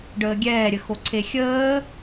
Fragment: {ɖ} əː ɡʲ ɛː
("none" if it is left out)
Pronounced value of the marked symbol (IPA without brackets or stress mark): ɖ